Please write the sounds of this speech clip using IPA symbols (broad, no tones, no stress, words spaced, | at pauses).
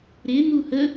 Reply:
ɾɪn̪u hə